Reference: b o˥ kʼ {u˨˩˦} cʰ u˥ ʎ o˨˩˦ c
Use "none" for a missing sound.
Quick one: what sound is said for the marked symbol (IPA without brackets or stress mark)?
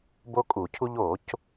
u˨˩˦